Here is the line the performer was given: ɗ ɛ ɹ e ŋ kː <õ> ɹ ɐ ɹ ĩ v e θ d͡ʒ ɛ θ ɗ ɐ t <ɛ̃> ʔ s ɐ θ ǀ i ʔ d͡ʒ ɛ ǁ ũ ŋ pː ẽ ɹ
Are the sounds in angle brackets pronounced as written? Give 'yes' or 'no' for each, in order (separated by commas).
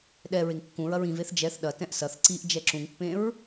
no, yes